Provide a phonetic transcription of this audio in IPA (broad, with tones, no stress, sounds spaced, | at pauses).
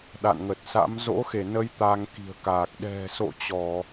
ɗ a̰˧˨ n ŋ ə˨˩ t̚ s a̰˧˥ m z o̰˧˥ x e˧˩ n ə˨˦ j t̪ a˧ ŋ k i̤˨˩ ə̯ k aː˨˩ k̚ ɗ ɛ̤˨˩ s o̰˧˨ t͡ɕ ɔ˧˩˨